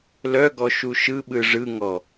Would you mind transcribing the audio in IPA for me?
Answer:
l œ ɡ ɔ ʃ u ʃ ɯ ɓ ɯ ʐ ɯ ŋ ɔ

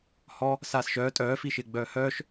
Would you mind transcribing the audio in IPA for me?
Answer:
h ɔ | s aː s ʃ œː tʼ œː f i ʃ ɪː ɡ͡b œː h œː ʃ

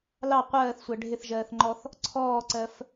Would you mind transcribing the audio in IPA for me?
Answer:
l ɑ qʷ ɜː θ sʷ æ ɖʱ ɪ θ ʒ ɜː θ ŋ͡ǃ ɔ θ | ǀʰ ɔː ǀ ɜ f

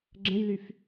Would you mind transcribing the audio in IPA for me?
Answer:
ɡ͡ǁ ə̃ j l y f

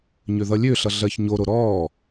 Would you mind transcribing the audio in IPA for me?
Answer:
ɲ ø ð ʌ lʲ ø ɬ ʌ ɮ ɜ ç ɲ o ɾ o ɾ ɔː

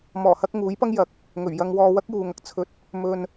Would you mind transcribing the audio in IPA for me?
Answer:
m ɔː˨˩ h ɐ˧ k̚ ŋ uː˨˥ j p ɐ˥ ŋ j ɐ˨˥ k̚ | ŋ ɵ˨˩ ɥ j ɐ˧ ŋ w ɔː˧ w ɐ˥ k̚ j uː˨ ŋ ɐ˨ k̚ t͡sʰ ɵ˧ t̚ | m ɵ˧ n

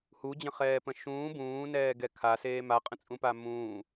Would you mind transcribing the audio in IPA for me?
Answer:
h u d͡ʑ ə̃ χ ɛː p ə̃ ʃ ũː b ũː n ɛː ɡ ɛ kʰ a s eː m a qʼ ə̃ t͡sʼ ũ p a m ũː

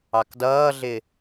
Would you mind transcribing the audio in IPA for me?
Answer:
ɑ k d ʌː ɮ ɪ

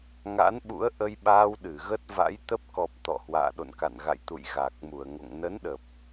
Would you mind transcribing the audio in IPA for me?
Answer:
ŋ a̰˧˥ n ɓ ṵ˧˥ ə̯ ʔ ə˧ j ɓ aː˧ w ɗ ɨ˧˩ ɣ ə˦˥ t̚ v a̰˧˥ j t̪ ə˦˥ p̚ k ɔ˨˩ p̚ t̪ ɔ̰˧˨ h w a̰ː˧˨ ɗ o̰˧˨ n k a̰˧˨ n ɣ a̰˧˨ j t̪ ṵ˧˨ j ɣ a˨˩ k̚ m u˧˩ ə̯ ŋ o̰˧˨ ŋ n ə˨˦ n ɗ ə˨˩ p̚

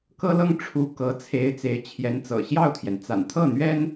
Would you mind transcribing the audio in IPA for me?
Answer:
k ɤ˥ l ɤ˥ ŋ ʈ͡ʂʰ u˧˥ k ɤ˧˥ t͡sʰ e˧˥ ɪ̯ t͡s e˧˥ ɪ̯ t͡ɕʰ j ɛ˧˥ n t͡s ɤ̰˨˩ ɕ j ɑ˥˩ ʊ̯ t̪ʰ j ɛ˩ n t͡s a̰˨˩ n t̪ʰ ɤ˥˩ n̪ ɥ ɛ˥ n

